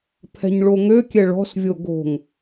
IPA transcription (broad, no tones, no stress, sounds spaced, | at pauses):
pʰ ɛ̤ ɲ ɭ o ŋ ø kʲ ɛ ɭ ɔ̤ s vʲ o ɡ o̤ ŋ